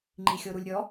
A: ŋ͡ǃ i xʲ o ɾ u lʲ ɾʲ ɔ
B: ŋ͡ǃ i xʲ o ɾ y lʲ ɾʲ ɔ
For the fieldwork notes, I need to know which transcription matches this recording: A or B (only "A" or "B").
A